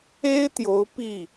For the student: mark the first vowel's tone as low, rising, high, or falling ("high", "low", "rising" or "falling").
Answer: high